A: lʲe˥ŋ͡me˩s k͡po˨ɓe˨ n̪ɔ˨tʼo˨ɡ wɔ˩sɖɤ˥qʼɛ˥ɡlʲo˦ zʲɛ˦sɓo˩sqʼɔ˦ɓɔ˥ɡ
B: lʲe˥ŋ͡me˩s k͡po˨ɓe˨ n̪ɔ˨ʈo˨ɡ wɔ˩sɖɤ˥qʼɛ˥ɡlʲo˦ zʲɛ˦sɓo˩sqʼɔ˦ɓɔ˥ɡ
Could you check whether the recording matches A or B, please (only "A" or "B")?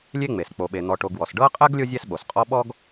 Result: B